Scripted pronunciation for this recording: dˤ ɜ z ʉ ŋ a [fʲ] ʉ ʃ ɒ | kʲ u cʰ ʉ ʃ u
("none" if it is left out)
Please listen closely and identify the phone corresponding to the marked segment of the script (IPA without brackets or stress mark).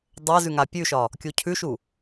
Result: pʲ